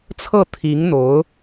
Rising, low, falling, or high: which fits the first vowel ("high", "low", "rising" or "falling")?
falling